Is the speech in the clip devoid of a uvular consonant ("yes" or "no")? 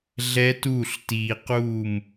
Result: no